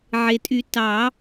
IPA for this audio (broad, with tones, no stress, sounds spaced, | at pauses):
ʕ e˩ tʼ y˨˩˦ t ɑ˨˩˦